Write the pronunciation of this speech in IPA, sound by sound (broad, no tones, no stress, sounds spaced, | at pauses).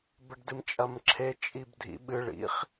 b ɘ ɖ d ɨ m t͡ʃʼ ɐ m ǁʰ e t͡ʃʼ i b dʱ ḭ ɓ ɨ ɭ ḭ χ